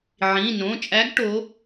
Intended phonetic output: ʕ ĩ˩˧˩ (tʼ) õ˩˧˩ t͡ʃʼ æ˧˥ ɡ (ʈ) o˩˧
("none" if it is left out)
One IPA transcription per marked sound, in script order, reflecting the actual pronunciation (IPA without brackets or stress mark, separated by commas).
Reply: n, ʈ